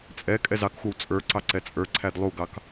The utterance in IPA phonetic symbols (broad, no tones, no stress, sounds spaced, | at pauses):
t͡sʼ ɛ kʼ ɛ z ɑ k xʷ ɑ w t͡sʼ ə˞ ǀ ɑ ǀ ɛ t͡sʼ ə˞ ǀʰ æ d lˠ u ɡ ɑ k